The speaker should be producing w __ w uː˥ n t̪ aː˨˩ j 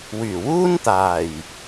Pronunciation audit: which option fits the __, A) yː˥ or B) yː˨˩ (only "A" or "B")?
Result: B